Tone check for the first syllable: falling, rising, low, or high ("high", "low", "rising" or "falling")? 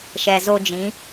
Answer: low